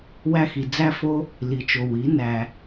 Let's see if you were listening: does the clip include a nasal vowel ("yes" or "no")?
no